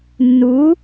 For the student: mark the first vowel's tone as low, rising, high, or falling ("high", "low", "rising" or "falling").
rising